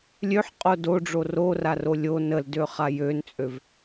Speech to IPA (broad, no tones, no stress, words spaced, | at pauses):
lʲøħqʼo doɖ͡ʐo roraro lʲon əldøχa jønt͡sʼøv